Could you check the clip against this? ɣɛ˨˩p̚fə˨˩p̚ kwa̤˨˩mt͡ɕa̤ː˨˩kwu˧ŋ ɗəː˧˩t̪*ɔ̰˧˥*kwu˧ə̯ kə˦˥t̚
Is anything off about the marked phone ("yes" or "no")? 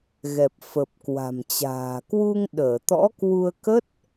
no